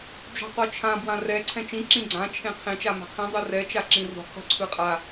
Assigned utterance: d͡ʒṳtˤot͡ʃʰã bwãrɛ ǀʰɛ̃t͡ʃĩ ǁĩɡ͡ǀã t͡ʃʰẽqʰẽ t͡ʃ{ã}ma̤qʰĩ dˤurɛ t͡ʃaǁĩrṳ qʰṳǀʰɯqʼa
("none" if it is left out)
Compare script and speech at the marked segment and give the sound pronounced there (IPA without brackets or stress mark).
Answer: a